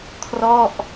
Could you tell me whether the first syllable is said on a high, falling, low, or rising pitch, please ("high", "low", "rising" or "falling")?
falling